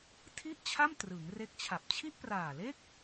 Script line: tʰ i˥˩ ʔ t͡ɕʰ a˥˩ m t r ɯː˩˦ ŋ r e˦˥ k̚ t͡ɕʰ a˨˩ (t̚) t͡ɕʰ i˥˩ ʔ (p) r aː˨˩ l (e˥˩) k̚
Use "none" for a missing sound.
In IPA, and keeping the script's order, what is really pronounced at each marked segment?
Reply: p̚, p, e˥˩

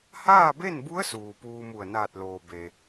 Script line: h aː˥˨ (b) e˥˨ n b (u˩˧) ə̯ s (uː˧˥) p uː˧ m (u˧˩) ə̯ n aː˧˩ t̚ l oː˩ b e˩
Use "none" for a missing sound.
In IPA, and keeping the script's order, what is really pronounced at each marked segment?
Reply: b, u˧˥, uː˩, u˧˩

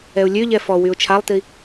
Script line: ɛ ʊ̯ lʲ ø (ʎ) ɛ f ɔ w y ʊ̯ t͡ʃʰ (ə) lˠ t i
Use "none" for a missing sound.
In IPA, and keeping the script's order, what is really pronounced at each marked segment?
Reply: ʎ, a

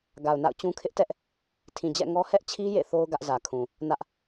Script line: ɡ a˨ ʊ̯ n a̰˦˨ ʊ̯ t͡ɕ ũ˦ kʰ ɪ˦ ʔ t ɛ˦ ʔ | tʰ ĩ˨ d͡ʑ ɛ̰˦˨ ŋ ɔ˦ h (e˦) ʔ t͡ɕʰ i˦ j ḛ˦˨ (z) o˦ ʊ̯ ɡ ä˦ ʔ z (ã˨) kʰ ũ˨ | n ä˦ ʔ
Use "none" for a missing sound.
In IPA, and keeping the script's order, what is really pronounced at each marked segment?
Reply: ɛ˦, θ, ä˨

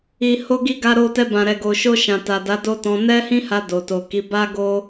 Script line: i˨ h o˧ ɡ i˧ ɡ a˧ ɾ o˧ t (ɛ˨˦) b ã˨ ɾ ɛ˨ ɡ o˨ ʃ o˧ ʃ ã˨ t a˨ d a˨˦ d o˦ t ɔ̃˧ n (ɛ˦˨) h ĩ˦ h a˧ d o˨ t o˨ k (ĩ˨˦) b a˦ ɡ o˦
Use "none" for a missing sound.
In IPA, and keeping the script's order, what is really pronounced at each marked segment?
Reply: ɛ˧, ɛ˦, i˨˦

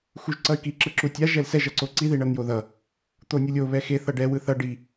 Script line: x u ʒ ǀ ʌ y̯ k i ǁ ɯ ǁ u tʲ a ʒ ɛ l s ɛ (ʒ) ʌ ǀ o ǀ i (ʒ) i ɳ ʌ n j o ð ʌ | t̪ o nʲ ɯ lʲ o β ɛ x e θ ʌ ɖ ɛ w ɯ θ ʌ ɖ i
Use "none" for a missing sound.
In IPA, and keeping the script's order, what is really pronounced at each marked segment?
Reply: ʒ, ð

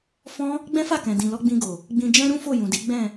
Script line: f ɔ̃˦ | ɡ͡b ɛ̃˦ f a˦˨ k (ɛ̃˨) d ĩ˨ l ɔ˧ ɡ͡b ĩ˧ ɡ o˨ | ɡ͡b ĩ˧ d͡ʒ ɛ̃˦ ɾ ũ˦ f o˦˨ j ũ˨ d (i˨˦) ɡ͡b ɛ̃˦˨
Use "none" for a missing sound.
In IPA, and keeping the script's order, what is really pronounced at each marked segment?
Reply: ɛ̃˨, i˨˦

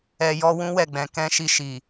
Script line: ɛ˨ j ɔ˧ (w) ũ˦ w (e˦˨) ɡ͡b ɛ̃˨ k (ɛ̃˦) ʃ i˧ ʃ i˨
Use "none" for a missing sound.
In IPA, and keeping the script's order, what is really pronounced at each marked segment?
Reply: w, ɛ˦˨, ɛ̃˧

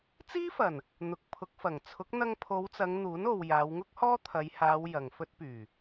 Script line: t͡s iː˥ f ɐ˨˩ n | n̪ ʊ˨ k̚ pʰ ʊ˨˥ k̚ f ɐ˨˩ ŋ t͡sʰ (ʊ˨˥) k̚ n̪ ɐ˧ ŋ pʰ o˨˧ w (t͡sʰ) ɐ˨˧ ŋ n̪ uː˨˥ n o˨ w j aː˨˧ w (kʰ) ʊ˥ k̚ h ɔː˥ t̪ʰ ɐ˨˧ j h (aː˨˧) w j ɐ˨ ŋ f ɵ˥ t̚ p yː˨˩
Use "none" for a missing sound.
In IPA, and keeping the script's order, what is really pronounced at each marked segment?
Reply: ʊ˨˥, t͡s, ŋ, aː˨˧

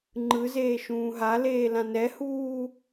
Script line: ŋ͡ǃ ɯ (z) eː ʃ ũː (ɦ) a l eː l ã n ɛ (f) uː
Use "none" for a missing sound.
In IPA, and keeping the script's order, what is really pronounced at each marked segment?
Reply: z, ɦ, h

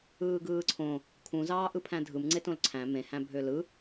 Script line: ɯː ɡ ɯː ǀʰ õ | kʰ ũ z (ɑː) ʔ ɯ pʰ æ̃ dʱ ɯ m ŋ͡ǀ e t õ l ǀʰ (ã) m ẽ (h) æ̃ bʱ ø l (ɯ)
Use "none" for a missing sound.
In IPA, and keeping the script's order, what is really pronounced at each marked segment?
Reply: ɑː, æ̃, h, ɯ

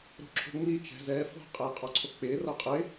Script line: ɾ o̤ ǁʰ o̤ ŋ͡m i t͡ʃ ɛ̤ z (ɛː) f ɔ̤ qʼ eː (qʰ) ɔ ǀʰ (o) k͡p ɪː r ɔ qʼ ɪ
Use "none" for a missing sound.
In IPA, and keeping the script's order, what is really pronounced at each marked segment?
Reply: ɛː, qʼ, o

